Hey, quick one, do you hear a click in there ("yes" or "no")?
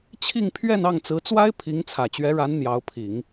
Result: no